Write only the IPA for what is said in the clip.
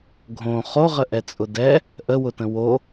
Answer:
ɡʱõ χoʁəʔɛt͡sʼʊ dɛ | ʔəwʊtə̃ wo

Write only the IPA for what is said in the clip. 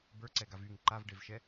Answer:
bə˞ǀɛɡav yŋ ǃavɖevʃɛ

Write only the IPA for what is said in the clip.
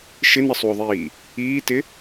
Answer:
ʃɪnəsˤuo̯ðˤiː | iːtɪ

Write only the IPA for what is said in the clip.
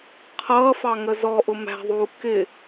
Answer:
qʰʌːfɑ ŋəzɔʔʊ mæ̤ðˤuː kɪ

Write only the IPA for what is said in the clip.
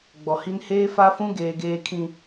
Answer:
ɡ͡bɔ˨hi˦n heː˦fa˦fũ˦ ɡeː˨ɡeː˨kʰĩ˨

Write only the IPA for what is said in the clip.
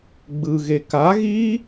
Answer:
ɡ͡bɯɣe ka ɣi

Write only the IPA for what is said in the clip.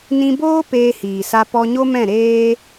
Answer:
nĩ˧boː˦ peː˧hiː˨sa˧ pɔ˧ɲo˦mɛ̃˦˨ ɾeː˦

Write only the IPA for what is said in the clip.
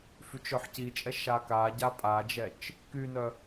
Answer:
fyt͡ʃœħcit͡ʃʼɛ ʃakaɟa pʼad͡ʒɛt͡ʃ | kynœ

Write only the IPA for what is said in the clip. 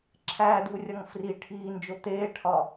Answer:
ǁʰæːd̪uːrʲɒŋ fri ʈʰiːnd͡ʒo t̪eːʈʰɒ

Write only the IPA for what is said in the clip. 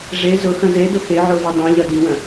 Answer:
ʐe zʊxɐ̃ zedʊ xeʕove dˤõʎɐ diwɐ̃

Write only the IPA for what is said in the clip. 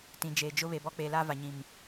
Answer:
tĩ˨d͡ʒeː˨d͡ʒʊ˦ βe˨bɔ˦k͡pe˨la˦ va˨ɲĩ˨m

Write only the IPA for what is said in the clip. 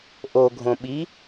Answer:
ʔoɡʱõɓi

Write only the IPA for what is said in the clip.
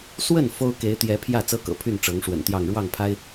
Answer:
swə˥˩n fo˥ʊ̯ ke˧˥ɪ̯t̪jɛ˧˥pʰjä˥˩ t͡sɤ˥kɤ̰˨˩ pʰy˥˩n ʈ͡ʂɤ˧˥ŋʂwə̰˨˩nt̪jɑ˥˧ŋ ɻwɑ˥˩ŋpʰa˥ɪ̯

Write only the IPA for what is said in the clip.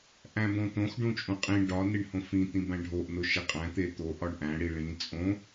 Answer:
ʔæ̃bõt̪õx ɖũt͡ʃʼũqʼĩ ɖɒ niɳhõfĩ t̪ĩbæ̃ɖʱoʔ noʃeqʼæ̃ t̪et̪o ʔɒɳʔæ̃ ɽiɭĩ t͡sʼõ

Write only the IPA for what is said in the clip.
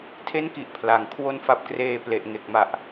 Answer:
tʰe˦˥nki˨˩ʔ pʰla˨˩ŋ kʰwo˧n fa˦˥p̚kreː˧ ple˨˩ʔŋe˨˩k̚ ma˨˩ʔ

